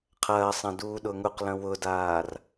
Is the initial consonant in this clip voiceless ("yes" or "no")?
yes